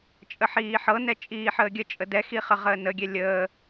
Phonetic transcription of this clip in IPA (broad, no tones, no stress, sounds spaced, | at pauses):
t͡ʃʼ ə ħ iː ħ ɤ n ɛ t͡ʃʼ iː ħ əː ɡʲ ə t͡ʃʼ ə d ɛ x i χ ə ʁ əː n ə ɡʲ ɛ lʲ əː